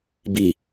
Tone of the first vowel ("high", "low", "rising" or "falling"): low